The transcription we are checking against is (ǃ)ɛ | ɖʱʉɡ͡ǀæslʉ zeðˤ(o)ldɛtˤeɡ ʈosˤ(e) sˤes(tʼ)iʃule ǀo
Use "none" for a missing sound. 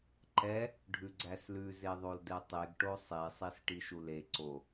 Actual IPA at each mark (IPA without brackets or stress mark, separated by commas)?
ǃ, o, e, ʈ